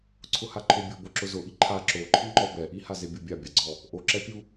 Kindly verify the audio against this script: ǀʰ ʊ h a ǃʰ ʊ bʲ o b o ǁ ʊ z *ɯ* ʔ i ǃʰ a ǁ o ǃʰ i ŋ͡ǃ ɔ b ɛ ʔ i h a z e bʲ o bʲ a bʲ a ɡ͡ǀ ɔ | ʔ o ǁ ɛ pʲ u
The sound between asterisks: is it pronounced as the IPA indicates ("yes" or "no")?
no